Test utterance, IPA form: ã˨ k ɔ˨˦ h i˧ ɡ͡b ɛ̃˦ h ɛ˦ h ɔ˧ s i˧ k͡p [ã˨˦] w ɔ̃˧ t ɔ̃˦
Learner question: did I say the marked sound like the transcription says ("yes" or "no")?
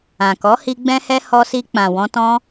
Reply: no